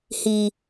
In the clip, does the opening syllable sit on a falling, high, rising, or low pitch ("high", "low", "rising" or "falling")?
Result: low